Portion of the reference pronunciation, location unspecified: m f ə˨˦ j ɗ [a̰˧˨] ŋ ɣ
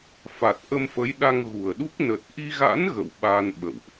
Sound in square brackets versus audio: incorrect: a˧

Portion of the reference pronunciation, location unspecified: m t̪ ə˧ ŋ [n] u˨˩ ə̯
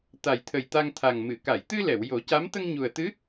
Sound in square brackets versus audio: incorrect: ɲ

